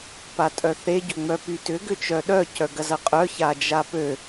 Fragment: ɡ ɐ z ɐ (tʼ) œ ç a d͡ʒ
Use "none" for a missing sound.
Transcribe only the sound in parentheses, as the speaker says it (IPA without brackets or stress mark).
qʼ